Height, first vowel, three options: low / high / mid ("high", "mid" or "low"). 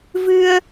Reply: high